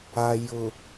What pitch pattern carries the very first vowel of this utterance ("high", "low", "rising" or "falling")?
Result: low